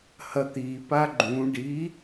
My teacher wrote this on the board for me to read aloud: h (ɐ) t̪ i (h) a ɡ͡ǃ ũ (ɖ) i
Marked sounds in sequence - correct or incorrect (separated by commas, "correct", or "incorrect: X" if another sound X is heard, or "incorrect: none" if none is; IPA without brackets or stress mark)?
correct, incorrect: p, correct